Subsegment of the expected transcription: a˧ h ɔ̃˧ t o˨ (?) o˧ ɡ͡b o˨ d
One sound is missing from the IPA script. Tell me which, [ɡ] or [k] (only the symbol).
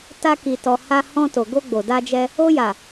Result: ɡ